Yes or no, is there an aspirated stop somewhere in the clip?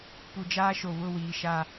no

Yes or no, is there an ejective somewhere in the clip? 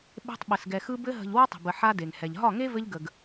no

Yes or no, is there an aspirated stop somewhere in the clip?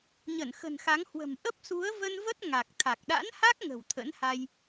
yes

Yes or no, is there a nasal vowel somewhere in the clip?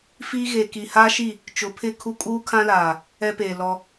yes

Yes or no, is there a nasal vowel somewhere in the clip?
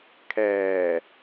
no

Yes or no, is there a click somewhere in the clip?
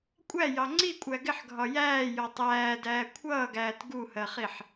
yes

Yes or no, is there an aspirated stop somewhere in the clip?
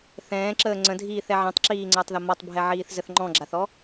no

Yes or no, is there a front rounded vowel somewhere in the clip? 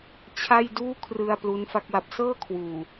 no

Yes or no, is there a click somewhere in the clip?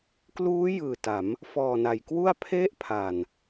no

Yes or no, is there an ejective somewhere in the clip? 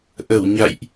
no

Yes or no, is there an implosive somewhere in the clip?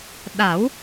yes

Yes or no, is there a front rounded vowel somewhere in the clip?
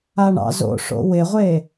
no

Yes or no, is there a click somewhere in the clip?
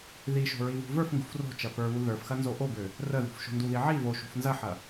no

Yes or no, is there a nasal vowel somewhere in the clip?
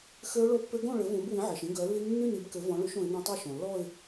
yes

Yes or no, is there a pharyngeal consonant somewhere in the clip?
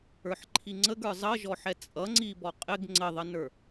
yes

